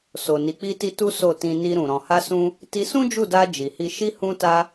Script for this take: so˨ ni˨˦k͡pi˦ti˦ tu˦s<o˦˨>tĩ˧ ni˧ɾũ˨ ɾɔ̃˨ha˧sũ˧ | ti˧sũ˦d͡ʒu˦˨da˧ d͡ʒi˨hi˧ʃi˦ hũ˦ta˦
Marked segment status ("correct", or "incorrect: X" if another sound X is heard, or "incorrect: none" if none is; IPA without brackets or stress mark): correct